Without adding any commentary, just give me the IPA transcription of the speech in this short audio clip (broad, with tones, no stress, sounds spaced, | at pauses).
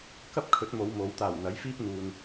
k ɐ˥ p̚ kʰ ɵ˨˥ t̚ m o˨˧ w m o˨˧ w t̪ aː˨˩ w n̪ ɐ˨˥ j f iː˥ p̚ n̪ uː˨ n